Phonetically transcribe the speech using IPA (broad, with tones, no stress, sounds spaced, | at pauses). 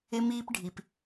ɪ˧ m iː˧ p ɖʱ i˩ p